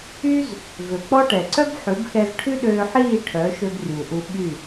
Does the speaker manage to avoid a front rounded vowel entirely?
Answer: no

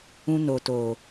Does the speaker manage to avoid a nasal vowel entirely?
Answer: no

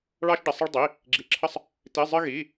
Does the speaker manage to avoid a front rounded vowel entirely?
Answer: yes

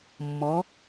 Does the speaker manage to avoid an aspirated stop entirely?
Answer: yes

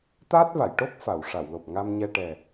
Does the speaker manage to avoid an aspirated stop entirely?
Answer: yes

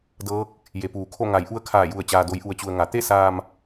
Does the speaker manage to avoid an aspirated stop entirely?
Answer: no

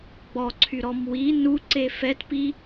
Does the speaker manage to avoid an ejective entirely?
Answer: yes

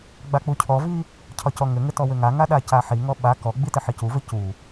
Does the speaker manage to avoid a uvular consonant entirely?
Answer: yes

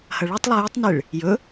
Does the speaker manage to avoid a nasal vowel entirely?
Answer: yes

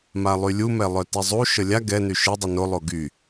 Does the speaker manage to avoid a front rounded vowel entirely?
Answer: no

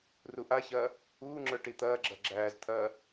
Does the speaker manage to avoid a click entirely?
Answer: no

